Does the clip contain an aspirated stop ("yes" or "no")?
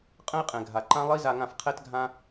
yes